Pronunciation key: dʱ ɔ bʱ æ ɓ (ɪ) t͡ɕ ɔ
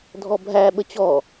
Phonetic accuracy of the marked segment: incorrect: ə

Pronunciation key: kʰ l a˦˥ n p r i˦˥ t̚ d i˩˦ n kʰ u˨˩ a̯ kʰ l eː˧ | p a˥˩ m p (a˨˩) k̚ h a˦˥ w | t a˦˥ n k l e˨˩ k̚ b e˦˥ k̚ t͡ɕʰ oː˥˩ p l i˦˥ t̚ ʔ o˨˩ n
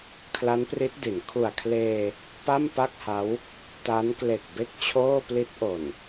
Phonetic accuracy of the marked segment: incorrect: a˥˩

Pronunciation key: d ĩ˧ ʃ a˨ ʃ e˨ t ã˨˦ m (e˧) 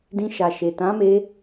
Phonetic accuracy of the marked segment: correct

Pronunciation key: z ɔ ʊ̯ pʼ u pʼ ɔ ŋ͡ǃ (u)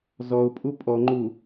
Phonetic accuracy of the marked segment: correct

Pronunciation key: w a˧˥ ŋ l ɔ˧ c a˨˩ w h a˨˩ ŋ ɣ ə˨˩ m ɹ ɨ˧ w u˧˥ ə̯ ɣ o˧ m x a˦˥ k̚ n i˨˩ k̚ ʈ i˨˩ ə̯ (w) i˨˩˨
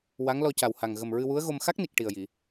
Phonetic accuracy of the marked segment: incorrect: j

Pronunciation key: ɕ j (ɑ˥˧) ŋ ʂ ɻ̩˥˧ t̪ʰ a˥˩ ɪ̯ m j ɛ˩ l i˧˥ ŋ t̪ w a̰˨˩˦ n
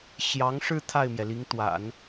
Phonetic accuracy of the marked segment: incorrect: ɑ˧˥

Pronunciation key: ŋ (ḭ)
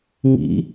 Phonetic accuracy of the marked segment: correct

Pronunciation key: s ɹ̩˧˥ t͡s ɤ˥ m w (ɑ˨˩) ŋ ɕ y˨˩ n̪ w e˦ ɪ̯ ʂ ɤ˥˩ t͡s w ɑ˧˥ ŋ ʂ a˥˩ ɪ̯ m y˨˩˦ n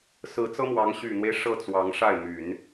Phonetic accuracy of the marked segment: incorrect: ɑ˧˥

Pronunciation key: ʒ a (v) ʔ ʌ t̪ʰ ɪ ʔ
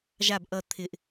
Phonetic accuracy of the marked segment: incorrect: b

